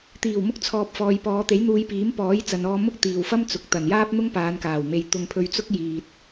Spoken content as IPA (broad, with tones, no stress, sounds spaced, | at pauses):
t̪ iː˨˩ w m ʊ˧ k̚ t͡sʰ ɔː˨ p̚ f ɔː˨ j p ɔː˨˧ t̪ e˨˥ j n̪ uː˧ j p iː˨˥ m p ɔː˨˥ j t͡s ɐ˨ n ɔː˧ m ʊ˥ k̚ t̪ iː˨ w f ɐ˥ m t͡s ʊ˨ k̚ t̪ ɐ˨˩ n j aː˥ p̚ n̪ ʊ˥ ŋ p aː˨˧ n k aː˨˩ w m e˨ j t̪ ʊ˧ ŋ pʰ ɵ˧ ɥ t͡s ʊ˥ k̚ j iː˨ t̚